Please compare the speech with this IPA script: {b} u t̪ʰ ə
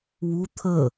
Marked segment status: incorrect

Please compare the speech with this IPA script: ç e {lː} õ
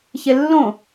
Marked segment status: correct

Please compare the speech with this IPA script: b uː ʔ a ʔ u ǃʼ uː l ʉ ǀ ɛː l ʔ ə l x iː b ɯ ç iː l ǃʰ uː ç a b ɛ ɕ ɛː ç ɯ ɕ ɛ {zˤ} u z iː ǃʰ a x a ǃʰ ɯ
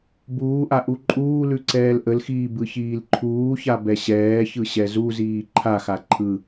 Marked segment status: incorrect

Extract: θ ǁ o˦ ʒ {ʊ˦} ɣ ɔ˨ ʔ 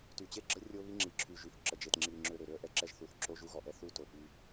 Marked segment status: incorrect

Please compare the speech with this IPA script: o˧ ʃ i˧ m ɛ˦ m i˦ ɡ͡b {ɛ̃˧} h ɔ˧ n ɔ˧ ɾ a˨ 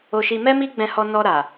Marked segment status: correct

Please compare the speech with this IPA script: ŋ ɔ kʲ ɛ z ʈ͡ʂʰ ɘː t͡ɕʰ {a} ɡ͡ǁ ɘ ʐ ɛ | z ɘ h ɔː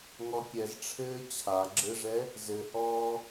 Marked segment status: correct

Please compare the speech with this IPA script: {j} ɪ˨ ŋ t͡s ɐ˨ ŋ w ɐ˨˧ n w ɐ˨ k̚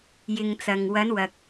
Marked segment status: correct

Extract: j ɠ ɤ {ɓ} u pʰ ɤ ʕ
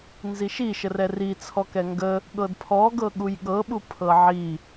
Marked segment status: correct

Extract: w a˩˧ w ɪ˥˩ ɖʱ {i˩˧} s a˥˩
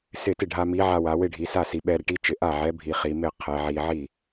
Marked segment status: correct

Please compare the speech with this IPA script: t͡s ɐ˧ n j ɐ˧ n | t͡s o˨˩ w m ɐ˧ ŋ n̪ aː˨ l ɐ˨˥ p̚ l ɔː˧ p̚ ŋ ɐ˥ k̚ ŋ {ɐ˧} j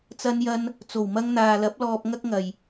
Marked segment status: incorrect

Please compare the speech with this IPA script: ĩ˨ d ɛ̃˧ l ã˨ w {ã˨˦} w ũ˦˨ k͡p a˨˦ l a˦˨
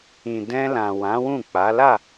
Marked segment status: correct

